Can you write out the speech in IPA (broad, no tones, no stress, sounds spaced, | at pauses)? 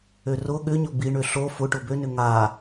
ø r ʊ ɠ ʏ ɲ ʊ b i ɳ ø ɬ o f ʊ ʈ ʊ b ø n ʏ ŋ a